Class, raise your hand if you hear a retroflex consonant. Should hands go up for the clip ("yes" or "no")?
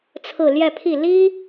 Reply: no